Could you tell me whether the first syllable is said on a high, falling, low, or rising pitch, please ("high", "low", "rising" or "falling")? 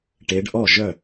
rising